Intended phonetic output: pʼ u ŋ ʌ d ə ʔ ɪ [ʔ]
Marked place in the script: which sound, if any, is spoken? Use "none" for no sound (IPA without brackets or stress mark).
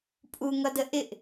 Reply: ʔ